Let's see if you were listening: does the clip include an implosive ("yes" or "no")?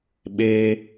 yes